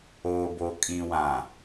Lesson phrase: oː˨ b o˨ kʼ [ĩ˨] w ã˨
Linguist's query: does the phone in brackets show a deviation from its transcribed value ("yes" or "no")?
no